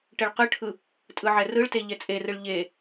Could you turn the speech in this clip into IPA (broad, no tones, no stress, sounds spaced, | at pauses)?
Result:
ʈ ɛ ɭ q ɯ ʈʰ ɯ | tʼ ɯ ʕ ɛ r ɯ ɭ t e ʎ ɛ t͡sʼ e r ɯ ɭ ʎ e